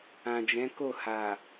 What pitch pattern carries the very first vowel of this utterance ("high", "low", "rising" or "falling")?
low